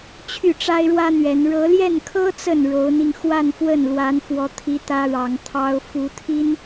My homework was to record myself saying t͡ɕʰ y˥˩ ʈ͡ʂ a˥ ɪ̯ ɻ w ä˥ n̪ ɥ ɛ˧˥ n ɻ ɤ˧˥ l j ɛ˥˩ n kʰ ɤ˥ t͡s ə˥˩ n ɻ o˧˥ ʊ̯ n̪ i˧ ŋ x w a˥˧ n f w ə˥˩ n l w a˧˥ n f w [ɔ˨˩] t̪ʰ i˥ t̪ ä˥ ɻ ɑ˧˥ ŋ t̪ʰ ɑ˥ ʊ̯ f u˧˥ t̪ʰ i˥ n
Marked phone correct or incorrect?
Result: incorrect